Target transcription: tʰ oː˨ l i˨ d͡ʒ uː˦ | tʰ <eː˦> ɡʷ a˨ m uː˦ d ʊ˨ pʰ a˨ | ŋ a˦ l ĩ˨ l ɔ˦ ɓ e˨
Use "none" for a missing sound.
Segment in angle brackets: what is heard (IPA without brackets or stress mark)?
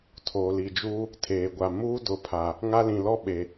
eː˨